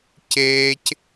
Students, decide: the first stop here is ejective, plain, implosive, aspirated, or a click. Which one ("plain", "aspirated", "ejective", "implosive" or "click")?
plain